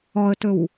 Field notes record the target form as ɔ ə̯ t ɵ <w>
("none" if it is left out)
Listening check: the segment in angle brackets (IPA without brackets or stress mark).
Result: w